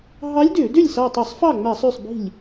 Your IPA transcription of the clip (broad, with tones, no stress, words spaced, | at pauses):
ɦɑ˧˥lʲdø˧˩˧dø˥˩lʲ sɑ˧˩tˤø˧˩˧sˤfɑ˥˩ŋ͡mæ˧˩˧sˤ ʉ˥˩sˤbi̤˥˩lʲ